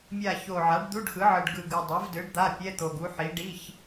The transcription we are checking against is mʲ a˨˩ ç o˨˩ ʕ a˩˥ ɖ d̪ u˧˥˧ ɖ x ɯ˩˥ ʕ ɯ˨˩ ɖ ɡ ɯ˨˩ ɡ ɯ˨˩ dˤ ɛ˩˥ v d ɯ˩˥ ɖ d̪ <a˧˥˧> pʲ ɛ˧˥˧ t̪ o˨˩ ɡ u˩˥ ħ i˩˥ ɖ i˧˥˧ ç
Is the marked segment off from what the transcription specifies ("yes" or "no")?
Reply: no